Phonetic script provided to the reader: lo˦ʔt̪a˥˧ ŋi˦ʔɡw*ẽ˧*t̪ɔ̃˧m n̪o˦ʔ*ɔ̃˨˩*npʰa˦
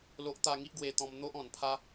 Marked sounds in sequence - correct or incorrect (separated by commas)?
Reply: incorrect, correct